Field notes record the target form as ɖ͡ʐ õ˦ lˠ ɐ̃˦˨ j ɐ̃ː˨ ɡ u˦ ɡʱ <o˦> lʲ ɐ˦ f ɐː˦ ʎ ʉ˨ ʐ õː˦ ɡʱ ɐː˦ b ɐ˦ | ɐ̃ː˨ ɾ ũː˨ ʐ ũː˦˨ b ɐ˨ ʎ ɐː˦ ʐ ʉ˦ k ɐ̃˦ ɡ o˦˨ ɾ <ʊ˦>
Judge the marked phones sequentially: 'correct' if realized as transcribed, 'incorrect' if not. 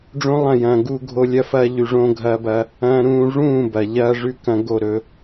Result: correct, incorrect: ɵ˦

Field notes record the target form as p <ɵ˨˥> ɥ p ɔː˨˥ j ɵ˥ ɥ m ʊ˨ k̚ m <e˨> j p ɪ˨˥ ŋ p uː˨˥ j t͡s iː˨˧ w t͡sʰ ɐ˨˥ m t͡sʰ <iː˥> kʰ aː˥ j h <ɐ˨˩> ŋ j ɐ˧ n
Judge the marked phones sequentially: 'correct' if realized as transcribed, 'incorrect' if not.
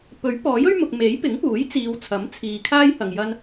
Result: correct, incorrect: e˨˥, incorrect: iː˨, incorrect: ɐ˨

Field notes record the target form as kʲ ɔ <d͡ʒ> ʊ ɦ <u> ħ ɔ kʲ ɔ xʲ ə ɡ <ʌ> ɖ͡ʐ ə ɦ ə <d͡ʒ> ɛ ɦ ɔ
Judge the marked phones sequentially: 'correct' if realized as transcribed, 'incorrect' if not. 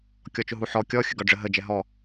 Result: incorrect: t͡ʃ, correct, incorrect: ɒ, correct

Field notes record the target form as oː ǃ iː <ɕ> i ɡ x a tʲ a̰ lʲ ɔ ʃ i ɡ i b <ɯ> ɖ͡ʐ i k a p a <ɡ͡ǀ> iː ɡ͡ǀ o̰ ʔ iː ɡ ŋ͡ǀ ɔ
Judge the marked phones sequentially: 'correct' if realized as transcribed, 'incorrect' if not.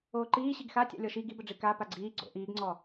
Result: correct, incorrect: ə, correct

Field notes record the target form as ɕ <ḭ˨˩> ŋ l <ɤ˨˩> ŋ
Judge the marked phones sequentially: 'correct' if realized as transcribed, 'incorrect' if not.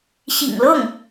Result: correct, incorrect: ɤ˥˩

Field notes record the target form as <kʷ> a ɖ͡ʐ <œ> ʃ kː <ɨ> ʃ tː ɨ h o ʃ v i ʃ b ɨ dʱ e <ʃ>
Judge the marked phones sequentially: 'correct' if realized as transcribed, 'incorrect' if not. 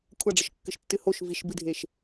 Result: incorrect: kʷʰ, incorrect: ə, correct, correct

